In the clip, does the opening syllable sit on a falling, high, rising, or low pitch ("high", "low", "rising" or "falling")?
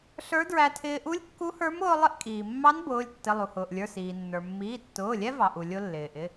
rising